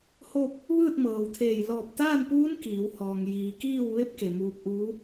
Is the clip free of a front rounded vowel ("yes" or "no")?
yes